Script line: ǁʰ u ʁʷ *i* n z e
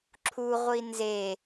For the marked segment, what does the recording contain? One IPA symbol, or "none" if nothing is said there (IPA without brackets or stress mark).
i